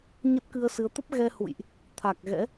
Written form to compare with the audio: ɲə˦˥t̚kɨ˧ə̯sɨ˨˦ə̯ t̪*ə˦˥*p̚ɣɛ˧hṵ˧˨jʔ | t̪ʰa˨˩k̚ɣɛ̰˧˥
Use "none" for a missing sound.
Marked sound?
ə˦˥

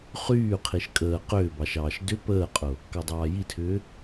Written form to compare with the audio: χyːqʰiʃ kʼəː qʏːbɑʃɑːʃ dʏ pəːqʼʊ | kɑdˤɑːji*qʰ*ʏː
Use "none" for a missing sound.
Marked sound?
tʰ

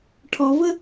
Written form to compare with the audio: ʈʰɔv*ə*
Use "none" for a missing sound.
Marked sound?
ə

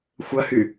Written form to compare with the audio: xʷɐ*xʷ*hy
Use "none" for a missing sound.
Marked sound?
none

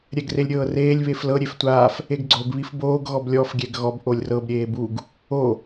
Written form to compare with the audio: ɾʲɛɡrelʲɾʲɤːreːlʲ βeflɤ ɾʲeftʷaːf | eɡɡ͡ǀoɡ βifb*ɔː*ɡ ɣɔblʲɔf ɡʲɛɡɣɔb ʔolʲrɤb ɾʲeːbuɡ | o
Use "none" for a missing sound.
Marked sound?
oː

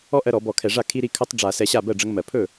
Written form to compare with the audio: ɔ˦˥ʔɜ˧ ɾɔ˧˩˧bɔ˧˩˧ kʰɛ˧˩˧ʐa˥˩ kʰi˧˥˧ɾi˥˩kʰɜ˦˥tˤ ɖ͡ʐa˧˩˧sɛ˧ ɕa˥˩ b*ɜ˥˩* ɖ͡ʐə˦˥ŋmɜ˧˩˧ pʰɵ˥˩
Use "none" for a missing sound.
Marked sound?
ɜ˥˩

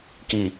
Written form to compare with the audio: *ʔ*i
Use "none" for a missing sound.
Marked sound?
k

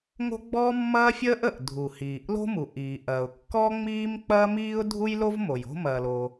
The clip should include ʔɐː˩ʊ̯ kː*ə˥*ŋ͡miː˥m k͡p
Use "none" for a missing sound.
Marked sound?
ɔ˥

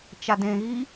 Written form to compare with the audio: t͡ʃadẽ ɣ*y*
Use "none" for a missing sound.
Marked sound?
i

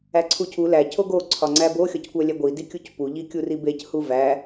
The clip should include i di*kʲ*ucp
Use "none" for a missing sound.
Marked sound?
kʲ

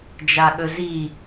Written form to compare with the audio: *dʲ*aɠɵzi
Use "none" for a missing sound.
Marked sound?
d͡ʒ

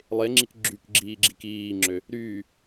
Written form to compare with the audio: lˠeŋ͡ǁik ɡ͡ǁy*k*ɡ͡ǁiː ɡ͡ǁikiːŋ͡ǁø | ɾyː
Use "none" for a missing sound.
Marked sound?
k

